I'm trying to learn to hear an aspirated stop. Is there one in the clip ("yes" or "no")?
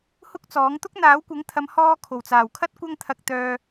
yes